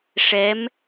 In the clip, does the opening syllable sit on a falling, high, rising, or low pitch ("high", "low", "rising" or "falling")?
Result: rising